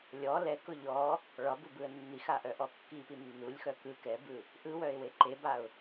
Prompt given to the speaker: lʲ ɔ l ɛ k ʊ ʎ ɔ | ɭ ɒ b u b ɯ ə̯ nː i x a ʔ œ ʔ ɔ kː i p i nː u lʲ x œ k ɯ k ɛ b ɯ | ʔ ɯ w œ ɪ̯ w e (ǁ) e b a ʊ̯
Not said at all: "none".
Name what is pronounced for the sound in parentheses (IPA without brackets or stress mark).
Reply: ǃ